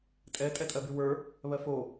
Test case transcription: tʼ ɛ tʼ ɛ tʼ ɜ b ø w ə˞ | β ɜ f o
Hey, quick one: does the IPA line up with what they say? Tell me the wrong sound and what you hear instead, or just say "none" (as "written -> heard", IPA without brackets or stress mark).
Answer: ø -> y